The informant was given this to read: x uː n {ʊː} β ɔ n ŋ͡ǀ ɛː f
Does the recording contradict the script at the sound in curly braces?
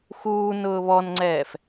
no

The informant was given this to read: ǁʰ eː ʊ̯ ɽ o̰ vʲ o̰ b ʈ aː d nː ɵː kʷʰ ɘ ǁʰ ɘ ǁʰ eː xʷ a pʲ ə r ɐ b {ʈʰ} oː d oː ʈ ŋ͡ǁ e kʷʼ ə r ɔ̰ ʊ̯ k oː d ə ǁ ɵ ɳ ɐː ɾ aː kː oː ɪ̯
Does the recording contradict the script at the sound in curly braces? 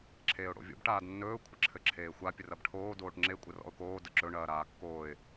no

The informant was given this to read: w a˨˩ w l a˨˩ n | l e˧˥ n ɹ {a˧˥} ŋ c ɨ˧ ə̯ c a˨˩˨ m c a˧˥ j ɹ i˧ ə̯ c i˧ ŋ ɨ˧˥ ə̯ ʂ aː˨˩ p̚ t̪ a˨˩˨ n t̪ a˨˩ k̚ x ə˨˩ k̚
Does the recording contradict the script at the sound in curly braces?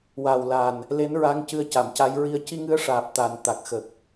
no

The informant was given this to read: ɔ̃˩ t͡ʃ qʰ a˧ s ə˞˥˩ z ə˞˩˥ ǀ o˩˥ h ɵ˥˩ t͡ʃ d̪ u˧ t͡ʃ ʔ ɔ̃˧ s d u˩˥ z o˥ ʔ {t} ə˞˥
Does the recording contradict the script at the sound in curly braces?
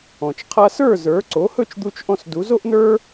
yes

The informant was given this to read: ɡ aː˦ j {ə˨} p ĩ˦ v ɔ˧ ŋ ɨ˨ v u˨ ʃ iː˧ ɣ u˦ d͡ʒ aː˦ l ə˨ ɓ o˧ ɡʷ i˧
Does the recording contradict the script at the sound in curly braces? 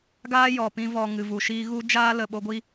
yes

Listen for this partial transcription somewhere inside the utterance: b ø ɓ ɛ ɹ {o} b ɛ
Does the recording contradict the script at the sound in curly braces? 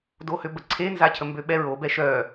no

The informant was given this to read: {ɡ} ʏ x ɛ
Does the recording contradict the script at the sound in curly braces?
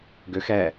no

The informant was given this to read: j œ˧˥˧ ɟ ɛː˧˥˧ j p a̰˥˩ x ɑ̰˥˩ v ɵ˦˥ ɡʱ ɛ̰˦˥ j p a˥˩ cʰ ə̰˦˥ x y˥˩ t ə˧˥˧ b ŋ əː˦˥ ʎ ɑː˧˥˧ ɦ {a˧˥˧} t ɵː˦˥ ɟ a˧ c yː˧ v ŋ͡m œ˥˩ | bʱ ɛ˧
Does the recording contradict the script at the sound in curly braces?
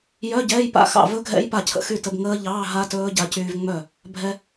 yes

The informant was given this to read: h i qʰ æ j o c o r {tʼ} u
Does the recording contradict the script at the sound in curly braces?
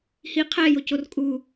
yes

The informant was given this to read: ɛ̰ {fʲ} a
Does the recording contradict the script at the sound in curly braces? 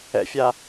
no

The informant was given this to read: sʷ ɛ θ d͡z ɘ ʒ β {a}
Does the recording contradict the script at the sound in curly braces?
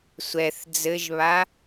no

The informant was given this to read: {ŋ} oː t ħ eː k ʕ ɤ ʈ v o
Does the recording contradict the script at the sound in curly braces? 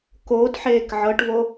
yes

